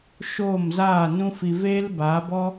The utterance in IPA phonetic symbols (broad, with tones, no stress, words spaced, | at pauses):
ʃoː˦˨mzaː˦˨ nũ˦fi˧ veː˦l baː˨˦bɔ˦